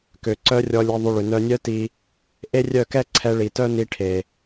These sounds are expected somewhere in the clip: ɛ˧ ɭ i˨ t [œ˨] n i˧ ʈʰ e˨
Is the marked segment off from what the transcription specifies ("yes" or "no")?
yes